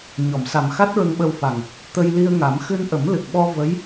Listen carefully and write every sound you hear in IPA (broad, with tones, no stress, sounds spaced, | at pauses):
ɲ ɔ˨˩˨ m s a˨˩ m x a˦˥ t̚ ɹ ə˧ ŋ ɓ ə˧ w f a˨˩ ŋ | t̪ ə˧ j l i˧ ə̯ ŋ a˨˩˦ m x ɨ˧ n ʔ ə˨˩˦ m l ɨ˨˩ k̚ ɓ ɔ˧ v ə˧˥ j